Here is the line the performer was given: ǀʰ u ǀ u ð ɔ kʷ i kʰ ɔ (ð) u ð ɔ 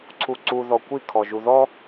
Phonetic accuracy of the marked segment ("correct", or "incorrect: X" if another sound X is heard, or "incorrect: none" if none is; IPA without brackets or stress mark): incorrect: ʒ